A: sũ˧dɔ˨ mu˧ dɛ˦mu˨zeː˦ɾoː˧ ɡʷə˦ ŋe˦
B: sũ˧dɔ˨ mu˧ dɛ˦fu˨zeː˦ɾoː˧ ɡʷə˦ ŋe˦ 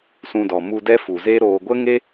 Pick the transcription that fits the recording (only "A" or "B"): B